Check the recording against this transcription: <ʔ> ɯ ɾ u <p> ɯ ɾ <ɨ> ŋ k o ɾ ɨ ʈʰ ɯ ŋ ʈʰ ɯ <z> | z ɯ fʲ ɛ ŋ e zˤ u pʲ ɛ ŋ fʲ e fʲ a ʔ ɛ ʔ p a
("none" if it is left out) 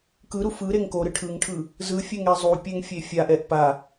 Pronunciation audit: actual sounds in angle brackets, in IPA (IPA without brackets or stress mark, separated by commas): k, f, e, none